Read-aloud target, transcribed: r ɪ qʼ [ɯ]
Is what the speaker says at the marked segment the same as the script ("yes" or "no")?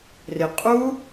no